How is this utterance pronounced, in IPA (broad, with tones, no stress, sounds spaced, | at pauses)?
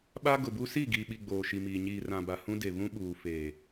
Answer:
ɓ a˦ ɡ ʊ˨ b u˦ s i˦˨ ɡ iː˨ ɓ i˨ ɡ͡b oː˨ ʃ i˨ m iː˨ ɲ iː˨ r ã˨ b a˨ h ũ˦ d e˨ β ũ˦ ɓ uː˨ f eː˨